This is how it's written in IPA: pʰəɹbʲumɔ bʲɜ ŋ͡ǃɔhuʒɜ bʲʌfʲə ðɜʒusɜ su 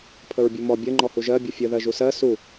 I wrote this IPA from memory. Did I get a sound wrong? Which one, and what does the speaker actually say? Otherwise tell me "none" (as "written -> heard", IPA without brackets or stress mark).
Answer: none